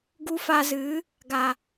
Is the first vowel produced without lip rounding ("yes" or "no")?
no